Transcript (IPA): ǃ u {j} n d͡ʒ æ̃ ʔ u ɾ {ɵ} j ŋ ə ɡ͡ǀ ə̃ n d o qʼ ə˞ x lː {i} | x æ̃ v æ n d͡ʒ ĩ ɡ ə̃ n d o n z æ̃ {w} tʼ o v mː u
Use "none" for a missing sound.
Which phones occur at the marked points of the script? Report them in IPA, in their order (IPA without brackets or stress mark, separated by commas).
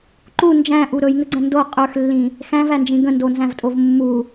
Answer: none, ɵ, ĩ, v